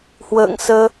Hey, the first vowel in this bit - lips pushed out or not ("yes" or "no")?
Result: no